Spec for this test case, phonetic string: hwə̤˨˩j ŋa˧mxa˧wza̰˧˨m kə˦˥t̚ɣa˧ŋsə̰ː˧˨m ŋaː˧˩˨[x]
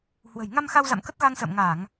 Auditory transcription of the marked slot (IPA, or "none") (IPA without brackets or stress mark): ŋ